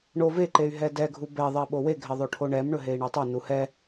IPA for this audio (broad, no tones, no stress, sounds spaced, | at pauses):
ɳ o v e ǃ e y̯ ɦ ɛ d ɛ ɡʱ u b ɛ ðˤ ɛ ɓ o w e ɡʱ ɛ ðˤ o ʈʰ o ɳ ɛ m ɳ ɵ ɦ e i̯ ɳ ɛ tˤ ɵ n u h ɛ